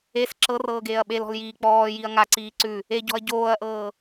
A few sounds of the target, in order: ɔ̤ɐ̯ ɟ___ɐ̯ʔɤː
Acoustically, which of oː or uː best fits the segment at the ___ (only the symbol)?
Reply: oː